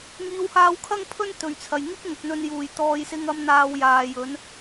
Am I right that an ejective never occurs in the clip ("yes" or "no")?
yes